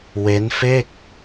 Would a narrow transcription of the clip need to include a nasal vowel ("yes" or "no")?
no